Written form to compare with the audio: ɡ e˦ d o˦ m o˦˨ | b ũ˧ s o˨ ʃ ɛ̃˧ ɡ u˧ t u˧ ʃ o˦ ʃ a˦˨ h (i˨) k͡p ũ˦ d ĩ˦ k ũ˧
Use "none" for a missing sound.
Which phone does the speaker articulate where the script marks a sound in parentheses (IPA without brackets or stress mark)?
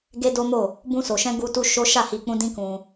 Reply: i˧